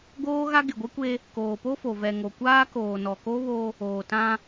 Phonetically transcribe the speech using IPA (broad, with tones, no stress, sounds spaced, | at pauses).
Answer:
ɡ oː˦ ɣ a˦ ɡ ɪ˨ ɡʷ ɪ˦ kʷ e˦ | k oː˨ p o˦ f o˨ v ɛ˨ ŋ o˨ kʷ aː˦ k oː˨ n ɔ˨ k o˦ β o˦ | oː˨ t ã˦